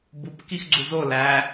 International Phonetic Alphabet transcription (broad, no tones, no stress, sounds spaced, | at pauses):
b u p k i x ɡ͡ǀ u z o l æ